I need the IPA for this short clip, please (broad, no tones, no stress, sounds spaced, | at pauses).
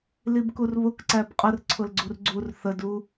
l i b k u r β ʊ k ǀ æ b qʼ ə r ǀʰ ʊ l ɡ͡ǀ u r ɡ͡ǀ u r θ ə d u